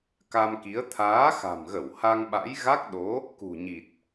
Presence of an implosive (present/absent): present